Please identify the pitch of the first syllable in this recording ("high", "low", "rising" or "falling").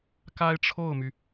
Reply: high